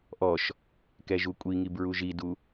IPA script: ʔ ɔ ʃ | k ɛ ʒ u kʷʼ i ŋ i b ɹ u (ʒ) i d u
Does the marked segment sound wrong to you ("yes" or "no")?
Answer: no